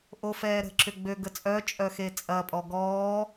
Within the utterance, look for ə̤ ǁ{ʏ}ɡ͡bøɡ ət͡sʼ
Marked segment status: correct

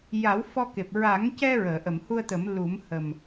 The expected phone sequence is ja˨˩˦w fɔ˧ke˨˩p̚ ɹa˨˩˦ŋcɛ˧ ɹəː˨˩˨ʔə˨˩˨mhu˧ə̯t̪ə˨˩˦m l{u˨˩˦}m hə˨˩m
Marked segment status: correct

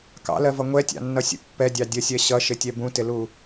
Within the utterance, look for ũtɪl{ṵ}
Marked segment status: incorrect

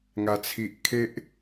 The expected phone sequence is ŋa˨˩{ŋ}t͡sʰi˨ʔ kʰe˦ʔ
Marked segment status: incorrect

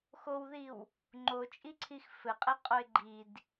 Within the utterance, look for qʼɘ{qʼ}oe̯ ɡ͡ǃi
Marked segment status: correct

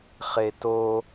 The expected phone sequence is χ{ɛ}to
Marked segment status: incorrect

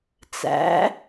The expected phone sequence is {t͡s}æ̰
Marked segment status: correct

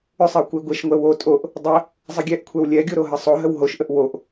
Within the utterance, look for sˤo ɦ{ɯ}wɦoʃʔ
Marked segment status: incorrect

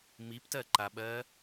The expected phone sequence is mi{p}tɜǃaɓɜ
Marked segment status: correct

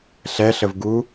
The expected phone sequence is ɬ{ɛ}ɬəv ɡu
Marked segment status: correct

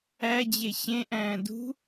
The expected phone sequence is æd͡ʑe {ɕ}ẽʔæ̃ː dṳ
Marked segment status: correct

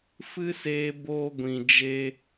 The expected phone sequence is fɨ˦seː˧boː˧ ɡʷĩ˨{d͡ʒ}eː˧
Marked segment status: correct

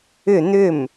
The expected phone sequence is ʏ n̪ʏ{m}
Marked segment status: correct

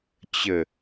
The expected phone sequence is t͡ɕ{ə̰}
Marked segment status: incorrect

